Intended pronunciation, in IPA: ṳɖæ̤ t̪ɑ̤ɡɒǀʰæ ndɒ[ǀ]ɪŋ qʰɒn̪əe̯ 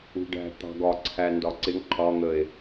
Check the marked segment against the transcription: correct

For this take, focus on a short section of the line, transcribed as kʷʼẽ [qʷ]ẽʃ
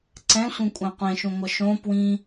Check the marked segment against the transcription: correct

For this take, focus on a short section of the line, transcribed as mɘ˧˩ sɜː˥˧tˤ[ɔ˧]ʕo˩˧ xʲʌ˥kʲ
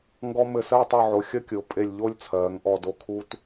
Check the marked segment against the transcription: incorrect: ɔ˧˩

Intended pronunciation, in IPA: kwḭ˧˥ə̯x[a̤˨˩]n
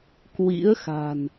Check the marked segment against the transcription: correct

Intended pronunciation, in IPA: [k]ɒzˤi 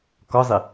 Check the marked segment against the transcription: correct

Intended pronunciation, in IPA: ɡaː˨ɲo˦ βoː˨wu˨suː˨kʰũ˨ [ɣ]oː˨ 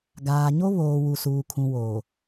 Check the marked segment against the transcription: incorrect: w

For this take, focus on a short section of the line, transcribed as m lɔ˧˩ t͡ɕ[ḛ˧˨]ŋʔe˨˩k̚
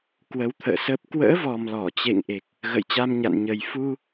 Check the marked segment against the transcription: correct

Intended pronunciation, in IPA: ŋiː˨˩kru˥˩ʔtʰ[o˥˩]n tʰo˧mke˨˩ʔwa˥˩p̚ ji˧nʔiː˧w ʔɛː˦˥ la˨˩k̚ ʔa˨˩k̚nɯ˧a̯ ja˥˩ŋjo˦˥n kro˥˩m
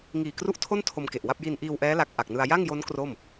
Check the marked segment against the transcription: correct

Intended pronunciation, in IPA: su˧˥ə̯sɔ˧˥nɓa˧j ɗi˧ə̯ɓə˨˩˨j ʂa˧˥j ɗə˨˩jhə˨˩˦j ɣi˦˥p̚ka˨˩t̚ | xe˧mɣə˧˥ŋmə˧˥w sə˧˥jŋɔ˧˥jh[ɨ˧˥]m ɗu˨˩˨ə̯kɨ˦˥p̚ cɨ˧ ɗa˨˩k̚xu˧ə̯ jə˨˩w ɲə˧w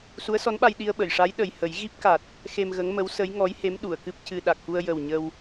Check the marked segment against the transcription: incorrect: e˧˥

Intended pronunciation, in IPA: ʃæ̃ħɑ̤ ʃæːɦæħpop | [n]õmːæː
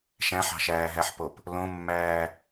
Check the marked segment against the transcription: incorrect: l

